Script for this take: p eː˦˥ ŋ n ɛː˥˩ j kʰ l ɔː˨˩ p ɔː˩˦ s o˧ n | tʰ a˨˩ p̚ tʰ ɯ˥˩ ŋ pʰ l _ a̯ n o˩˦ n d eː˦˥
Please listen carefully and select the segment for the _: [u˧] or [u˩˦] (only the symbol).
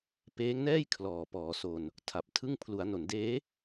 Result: u˩˦